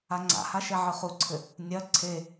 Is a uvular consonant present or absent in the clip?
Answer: present